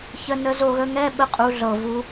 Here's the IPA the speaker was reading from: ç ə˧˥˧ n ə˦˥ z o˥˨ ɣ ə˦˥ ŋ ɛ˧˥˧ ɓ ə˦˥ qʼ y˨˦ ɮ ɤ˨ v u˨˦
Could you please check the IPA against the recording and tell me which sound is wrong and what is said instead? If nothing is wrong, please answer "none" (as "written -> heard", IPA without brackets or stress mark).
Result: y˨˦ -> u˨˦